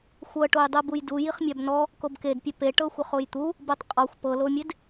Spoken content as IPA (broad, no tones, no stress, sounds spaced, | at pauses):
xʷ ɤ ʈ o j dˤ ɯ b u j d u j i χ mʲ a b n ɔ | k o b k e d pʲ ɛ p e ʈ ɤ xʷ ɤ χ o j t̪ u | b ɯ tˤ qʼ ɔ xʷ p ɤ l o mʲ e d